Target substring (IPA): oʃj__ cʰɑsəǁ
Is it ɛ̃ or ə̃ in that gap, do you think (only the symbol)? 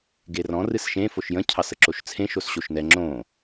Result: ə̃